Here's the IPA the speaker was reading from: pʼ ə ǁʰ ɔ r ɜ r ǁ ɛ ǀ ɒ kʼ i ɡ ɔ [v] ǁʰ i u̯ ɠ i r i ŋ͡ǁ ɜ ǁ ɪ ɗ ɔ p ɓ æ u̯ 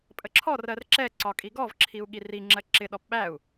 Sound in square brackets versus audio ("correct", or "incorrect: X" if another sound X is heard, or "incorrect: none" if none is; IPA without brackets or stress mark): correct